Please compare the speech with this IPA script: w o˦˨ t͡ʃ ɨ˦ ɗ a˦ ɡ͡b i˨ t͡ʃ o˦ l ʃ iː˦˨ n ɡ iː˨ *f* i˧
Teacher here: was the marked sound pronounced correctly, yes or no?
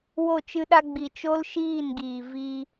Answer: no